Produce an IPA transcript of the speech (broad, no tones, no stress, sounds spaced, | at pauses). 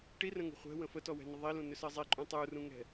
ʈ i r ə̃ ŋ ṳ χʷ ɛ̤ w ə̃ f ə t ɔ w ɛ̤ n ə ðˤ i l ũ n ʏ s ɜ zˤ i ǃʼ ũ tˤ u r ũ ŋ ɛ̤